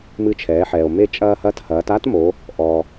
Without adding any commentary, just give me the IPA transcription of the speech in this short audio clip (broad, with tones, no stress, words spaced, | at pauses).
mɨ˧t͡ʃʰɛː˩˧ħɛː˩o̯ me˧t͡ʃʼɐː˧ hɐ˧˥thɐː˩˧ta˥tmo˩˧ | ʔɔ˩